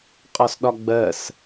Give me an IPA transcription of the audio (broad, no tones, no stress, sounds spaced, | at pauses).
qʼ ɒ s ɗ ɒ ɡ͡b ɜ s